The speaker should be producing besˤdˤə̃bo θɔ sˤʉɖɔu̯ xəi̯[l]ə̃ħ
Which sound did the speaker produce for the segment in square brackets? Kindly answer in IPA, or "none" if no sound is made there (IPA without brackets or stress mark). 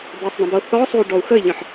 ʎ